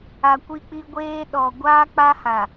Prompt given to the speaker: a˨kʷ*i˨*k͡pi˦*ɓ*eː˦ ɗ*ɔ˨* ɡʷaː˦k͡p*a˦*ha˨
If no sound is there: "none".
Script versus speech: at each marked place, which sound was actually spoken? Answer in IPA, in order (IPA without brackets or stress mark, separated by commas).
i˦, ɡʷ, ɔ˨, a˦